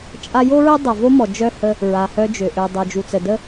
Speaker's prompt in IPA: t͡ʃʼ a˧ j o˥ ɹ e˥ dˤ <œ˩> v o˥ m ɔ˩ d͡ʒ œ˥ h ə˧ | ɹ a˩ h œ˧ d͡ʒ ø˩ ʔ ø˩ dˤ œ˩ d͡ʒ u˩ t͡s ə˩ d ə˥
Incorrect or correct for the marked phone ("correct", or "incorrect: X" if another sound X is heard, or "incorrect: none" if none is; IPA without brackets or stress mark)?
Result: correct